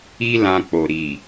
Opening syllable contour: high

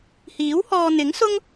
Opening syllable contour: rising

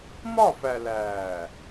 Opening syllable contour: falling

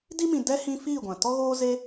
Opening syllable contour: high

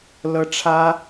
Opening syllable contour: high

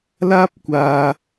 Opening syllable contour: high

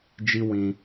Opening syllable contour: high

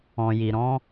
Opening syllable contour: low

